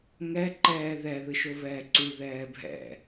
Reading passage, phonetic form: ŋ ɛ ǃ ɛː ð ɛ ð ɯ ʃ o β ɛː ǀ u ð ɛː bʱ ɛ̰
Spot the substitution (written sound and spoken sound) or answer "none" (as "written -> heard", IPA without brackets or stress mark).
none